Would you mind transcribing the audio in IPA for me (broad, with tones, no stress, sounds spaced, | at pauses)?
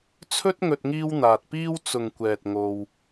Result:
t͡sʰ ɵ˥ t̚ ŋ ɵ˧ t̚ ŋ iː˥ w n̪ aː˧ t̚ p iː˥ w t͡s ʊ˨ ŋ kʷ ɛː˨ t̚ ŋ o˧ w